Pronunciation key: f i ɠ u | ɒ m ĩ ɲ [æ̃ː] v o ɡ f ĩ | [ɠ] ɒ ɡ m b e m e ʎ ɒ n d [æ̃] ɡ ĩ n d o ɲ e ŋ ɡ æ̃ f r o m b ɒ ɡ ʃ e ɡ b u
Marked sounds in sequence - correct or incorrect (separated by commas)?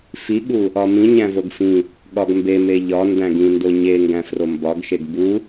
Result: incorrect, correct, correct